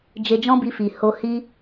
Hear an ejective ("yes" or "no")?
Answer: no